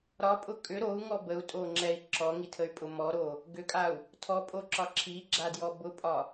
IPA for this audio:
ɾ ɒ pʼ ʊ kʼ ʏ ɾ o u̯ ŋ ɔ b ə u̯ tʼ o ŋ͡ǁ ɛ i̯ ǁ ɔ ŋ i tʰ ə y̯ pʼ ʊ m ɔ ɾ o | ɡ ʏ kʼ a u̯ | tʰ ɔ pʼ o ǁ ɒ ǁʰ i ɡ͡ǁ a d j ɔ b ʊ pʼ ɒ

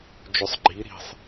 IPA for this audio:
d͡ʒ ʏ sˤ ɡ͡ǃ i ɾ i̤ sˤ

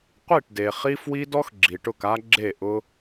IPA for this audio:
qʷ i˦˨ ʈ d e˨ χ i˦ f w i˦ d ɔ˦ x ɡ͡ǁ i˨ ʈ ʊ˦˨ k a˦ ɡ͡ǁ e˦˨ ʔ ʊ˦

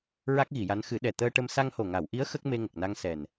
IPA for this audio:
ɹ a˦˥ k̚ ɣ i˨˩˨ j a˧˥ n x ɨ˨˩˦ ɗ ɛ˨˩ t̪ əː˧ ʈ ə˧ m s a˧ ŋ h o˨˩ ŋ a˨˩˨ w ʔ i˧˥ ə̯ x ə˦˥ k̚ m e˧ ŋ ə˨˩ k̚ n a˧ ŋ s ɛ˨˩ n

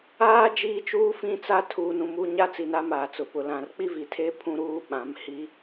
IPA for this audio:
aː˦ d͡ʒ iː˦ t͡ʃ uː˦ f ĩ˦ t͡s a˦ tʰ uː˨ n ũ˨ m u˨ ɲ a˦ t͡s i˨ n a˦ m aː˨ t͡s ʊ˨ p ʊ˨ l ã˨ r k͡p i˦ v i˨ tʰ e˦ pʰ ũ˦ ɾ uː˦ ɓ ã˨˦ m h i˦

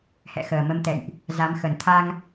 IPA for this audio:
h ɛ̰˧˨ x əː˨˩ m ə˧ m t̪ ɛ̰˧˨ j ʔ | z a˨˦ m x ə˨˩ n t̪ʰ a˧ ŋ

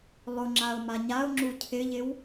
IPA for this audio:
lˠ ʊ ŋ͡ǁ a ʊ̯ m a ɲ a ʊ̯ ŋ͡ǁ u cʰ ɪ ʎ ɪ w

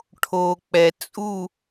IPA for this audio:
ʈʰ o˨ k͡p ɛ˨ t͡sʼ u˦˨

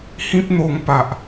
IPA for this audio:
h ĩ˦ p̚ n̪ o˧ ŋ p a˨ ʔ

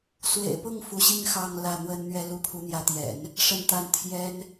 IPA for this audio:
s w ḛ˨˩ ɪ̯ p ʊ˥˩ ŋ f u˧˥ ɕ i˥ ŋ x ɑ˥˧ ŋ l ä˥˩ n̪ w ə˥ n n̪ ɥ ɛ˥ l u˥ pʰ u˧˥ n̪ j ä˧˥ t̪ j ɛ̰˨˩˦ n | ʂ ə˥˧ n t̪ a˥˩ n t̪ʰ j ɛ˥ n

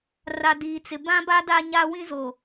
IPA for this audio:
r a˨ d iː˨ t͡s ɪ˨ b ã˦ b a˦ d a˦ ɲ a˦ w ĩ˦ z o˨

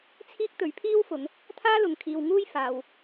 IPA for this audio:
t͡sʰ iː˥ k̚ t̪ ɵ˨˥ ɥ pʰ iː˥ w f ʊ˨˧ ŋ | t̪ʰ aː˥ l ʊ˨ ŋ kʰ iː˨ w ŋ uː˥ j f aː˨ w

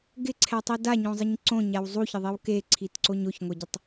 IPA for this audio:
ɡ ɪ ǀʰ ɛ tˤ i d a ɲ õ zˤ ɪ ɲ ǀ õ ɲ a w zˤ u ç ɪ ðˤ i w k e ǀʰ i t ǀ o ɲ o ç ŋʷ ɛ ɟ ɪ tˤ

